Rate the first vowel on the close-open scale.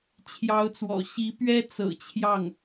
open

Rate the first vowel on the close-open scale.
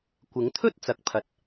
close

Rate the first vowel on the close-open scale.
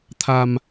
open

